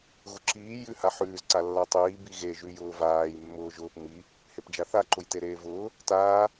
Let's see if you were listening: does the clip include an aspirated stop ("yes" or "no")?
no